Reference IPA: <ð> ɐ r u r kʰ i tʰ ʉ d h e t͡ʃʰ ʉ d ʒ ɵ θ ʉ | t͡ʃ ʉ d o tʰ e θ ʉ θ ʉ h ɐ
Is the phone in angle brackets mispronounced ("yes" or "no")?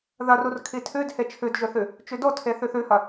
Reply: no